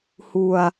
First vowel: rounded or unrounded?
rounded